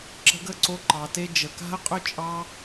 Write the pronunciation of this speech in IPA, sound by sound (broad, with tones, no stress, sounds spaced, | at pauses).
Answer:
ǁ ə̤˧ ɡ ə˦˨ ǀ o˧ ǃ ɑ˨ t e˧ d͡ʒ ə˨ k a̤˦ ə̯ qʼ ʏ˦ t͡ʃʼ ɑ˧